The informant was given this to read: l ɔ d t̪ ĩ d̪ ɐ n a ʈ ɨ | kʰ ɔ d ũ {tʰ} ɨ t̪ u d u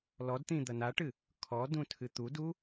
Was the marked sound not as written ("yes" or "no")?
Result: no